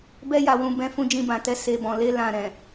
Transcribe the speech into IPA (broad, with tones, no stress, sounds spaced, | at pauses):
b ɛ˧ j a˨ w ũ˨ b ɛ̃˨˦ f ũ˧ d͡ʒ ĩ˧ b ã˨ t ɛ˧ s e˨ b ɔ̃˨ l e˧ l ã˨ ɾ ɛ̃˨